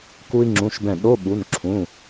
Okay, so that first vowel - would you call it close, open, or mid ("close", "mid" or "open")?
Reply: close